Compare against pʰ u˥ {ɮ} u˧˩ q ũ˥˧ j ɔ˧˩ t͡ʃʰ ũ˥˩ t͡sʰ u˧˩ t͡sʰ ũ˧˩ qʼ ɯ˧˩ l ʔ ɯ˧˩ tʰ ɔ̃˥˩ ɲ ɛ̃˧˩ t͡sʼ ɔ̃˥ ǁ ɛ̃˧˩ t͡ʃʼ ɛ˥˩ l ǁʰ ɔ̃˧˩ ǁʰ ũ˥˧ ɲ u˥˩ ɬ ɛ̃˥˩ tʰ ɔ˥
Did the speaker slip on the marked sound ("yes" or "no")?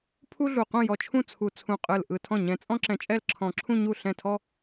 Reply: no